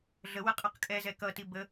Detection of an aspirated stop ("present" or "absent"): absent